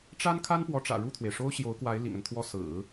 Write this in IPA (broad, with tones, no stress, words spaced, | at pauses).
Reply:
ʈ͡ʂa˥nkʰa˥n pwɔ˧˥ʈ͡ʂä̰˨˩ ɻu˥˩t̪ʰwe˩ɪ̯ ʂo˥ʊ̯ɕjo˧˥ʊ̯kwa˧˥ɪ̯ lḭ˨˩ŋə˦nt̪ʰwɔ˥˩ sɹ̩˨˩˦